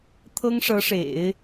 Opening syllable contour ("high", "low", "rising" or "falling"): high